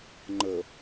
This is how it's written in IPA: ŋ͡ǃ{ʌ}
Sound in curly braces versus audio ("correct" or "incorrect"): incorrect